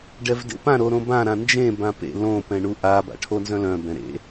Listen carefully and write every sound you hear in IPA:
ɖɛvdḛpã ɾoɾõbã ɾãnd͡ʒẽ bãpḛ lõ pɛ̃ɳuʔa ba̰ʈʰonzœ̃lœ̃ bɛ̃ɾḛ

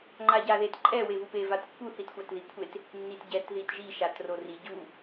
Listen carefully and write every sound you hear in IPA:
ŋ͡ǃaɟaðet ǃʼɛ wevupe vatpːu θitxʷatðikʷʰet | nːitɟɛt ðitʒi ʃatrori ɟu

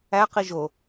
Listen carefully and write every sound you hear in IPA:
æqi ʒo

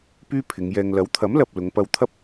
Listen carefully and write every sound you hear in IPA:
pyː˥pʰɪ˨˧ŋjɛː˧ŋ lɐ˨˥wt̪ʰɐ˨˥mlɐ˨p̚ lʊ˨˧ŋpɐ˧wt̪ʰɐ˥p̚

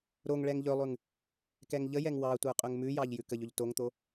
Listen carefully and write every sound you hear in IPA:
ɾoŋɭɛŋ ʎɵlˠʉŋ | kɛŋʎəjɛŋ wɑtʷə˞ qʼɵŋmʉjɑʎ jʉkəʎɵʎ toŋt̪o

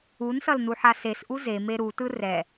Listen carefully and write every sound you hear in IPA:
unsʌlnuħa sesʔu zeme ɾutɯ rɛ

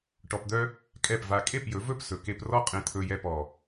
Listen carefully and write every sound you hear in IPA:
ʈɔ˧pd̪œ˦ | kʼɛ˦˨pva˧ kʼe˦˨pjɵ˨˦vɵ˦˨p sɵ˨ke˧p rɔ˦qʼẽ˧t̪ʰɵ˧jɛ˧ pɔ˨

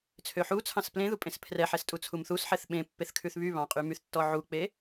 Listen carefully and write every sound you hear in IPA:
t͡sʰøħut͡sʰɑ̃s plẽðupʼẽs pʰrɛħɛstʼu t͡sʰumθusħɛθ ɓẽ pːeθkʰʉθβy βɑ̃qʼymyθtːɔ ʕuk͡pe

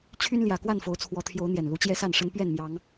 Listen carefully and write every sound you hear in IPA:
t͡ɕʰy˦nljä˨˩kwa˥˨n fo˨˦ʊ̯t͡sʰwɔ˨˦t̪ʰjo˨˦ʊ̯ n̪jɛ˨˩nlu˨˦ t͡ɕjɛ˦sa˥˨nʂə˦n pɥɛ˥˨nmjɑ˨˦ŋ

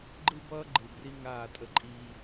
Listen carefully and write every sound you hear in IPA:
ɡ͡ǃɯ˦bʌː˦ ɡ͡ǃɯ˨bri˦ ŋaː˦˨tʼə˦ǃʼiː˦

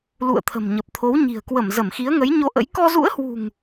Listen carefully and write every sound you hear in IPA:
lṵ˧˨ə̯t̪ʰə̤˨˩m ɲə˨˩p̚t̪ʰo˨˦wɲi̤˨˩ə̯ kwə˧˩mzə˧˩mxi˨˦ə̯ŋə˨˦j ɲo˧ʔə̰˧˥j kɔ˧zṵ˧˥ə̯hwṳ˨˩ŋ

